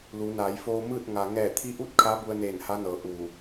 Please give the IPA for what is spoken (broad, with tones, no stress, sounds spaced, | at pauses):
l u˩˧ n aː˩˧ j f oː˧ m ɯː˥˨ t̚ ŋ a˩ ŋ ɛː˧˩ t̪ʰ i˧˥ ʔ u˥˨ t̚ kʰ a˧˥ b u˧ ə̯ n eː˧˩ n h a˧˥ n ɤː˩˧ ʔ u˧˩